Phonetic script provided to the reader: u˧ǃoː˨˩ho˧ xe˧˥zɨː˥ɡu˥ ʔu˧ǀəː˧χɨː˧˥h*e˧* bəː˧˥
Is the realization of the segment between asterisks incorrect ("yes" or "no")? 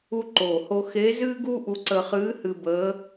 yes